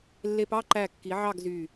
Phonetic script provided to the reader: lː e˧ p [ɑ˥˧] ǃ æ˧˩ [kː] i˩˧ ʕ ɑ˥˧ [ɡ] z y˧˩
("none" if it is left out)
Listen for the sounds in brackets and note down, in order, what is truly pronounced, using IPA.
ɑ˥˧, kː, ɡ

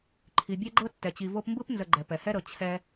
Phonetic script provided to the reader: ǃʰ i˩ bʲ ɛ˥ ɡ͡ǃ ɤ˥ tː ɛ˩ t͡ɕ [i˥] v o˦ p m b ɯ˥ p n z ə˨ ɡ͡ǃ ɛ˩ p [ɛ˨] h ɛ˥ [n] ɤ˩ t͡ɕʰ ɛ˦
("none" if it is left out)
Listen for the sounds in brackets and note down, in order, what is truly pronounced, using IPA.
i˨, ɛ˩, ɾ

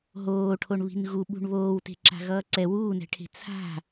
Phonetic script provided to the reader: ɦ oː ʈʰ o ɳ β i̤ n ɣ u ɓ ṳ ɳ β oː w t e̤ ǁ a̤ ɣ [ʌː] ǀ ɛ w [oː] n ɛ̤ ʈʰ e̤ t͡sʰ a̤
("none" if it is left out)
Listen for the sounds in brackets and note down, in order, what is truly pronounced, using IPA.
ʌː, uː

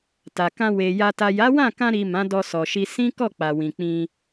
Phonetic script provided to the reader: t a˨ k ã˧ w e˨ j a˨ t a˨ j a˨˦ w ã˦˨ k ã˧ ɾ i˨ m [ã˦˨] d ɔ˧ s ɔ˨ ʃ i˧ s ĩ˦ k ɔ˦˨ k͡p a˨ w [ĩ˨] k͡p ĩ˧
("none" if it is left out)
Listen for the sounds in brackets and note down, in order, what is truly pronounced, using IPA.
ã˨˦, ĩ˨

